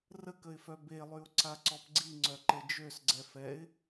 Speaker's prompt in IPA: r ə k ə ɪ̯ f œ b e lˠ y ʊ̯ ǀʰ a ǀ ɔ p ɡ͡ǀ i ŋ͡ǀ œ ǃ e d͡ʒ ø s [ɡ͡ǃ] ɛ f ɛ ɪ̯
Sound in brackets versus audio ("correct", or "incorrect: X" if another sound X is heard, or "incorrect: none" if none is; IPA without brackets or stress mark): incorrect: ɡ͡ǀ